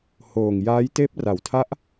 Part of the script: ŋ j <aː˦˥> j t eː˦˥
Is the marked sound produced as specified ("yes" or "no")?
yes